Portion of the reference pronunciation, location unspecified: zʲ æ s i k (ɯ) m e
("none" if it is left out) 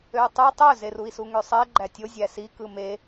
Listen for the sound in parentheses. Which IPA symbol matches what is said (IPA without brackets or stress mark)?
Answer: ɯ